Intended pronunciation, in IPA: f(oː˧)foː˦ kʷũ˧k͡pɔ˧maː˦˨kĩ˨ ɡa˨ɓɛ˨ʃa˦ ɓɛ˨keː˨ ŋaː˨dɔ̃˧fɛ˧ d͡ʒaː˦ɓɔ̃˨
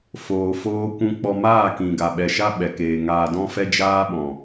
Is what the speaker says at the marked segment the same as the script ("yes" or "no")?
yes